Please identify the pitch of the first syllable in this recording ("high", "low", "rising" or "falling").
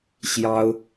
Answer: high